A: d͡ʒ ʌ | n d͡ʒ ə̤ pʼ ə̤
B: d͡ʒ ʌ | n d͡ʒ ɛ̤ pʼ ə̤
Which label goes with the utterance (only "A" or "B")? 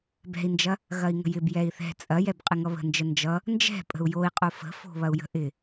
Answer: B